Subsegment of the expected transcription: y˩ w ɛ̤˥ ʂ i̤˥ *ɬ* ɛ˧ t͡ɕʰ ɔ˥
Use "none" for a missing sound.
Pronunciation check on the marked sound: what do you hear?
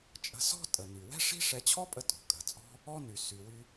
ʂ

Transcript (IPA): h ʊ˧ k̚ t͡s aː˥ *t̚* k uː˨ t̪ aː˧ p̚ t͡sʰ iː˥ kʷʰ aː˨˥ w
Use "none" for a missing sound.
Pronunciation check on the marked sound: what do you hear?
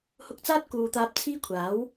t̚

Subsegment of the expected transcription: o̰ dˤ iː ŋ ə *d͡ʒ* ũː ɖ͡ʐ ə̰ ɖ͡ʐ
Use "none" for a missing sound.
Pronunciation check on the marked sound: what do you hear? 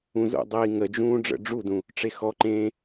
d͡ʒ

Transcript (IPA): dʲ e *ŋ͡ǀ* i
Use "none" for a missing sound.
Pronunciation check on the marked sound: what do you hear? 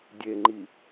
ŋ͡ǃ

